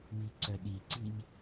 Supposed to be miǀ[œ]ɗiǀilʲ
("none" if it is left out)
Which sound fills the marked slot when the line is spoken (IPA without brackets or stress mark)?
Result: œ